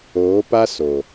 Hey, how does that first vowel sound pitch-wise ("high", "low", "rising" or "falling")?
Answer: rising